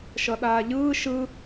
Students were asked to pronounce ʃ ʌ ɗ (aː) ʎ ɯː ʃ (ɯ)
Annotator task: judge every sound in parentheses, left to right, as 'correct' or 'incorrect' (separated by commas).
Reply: correct, correct